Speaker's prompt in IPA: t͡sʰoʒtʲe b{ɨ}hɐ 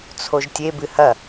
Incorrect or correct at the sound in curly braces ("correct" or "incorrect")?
correct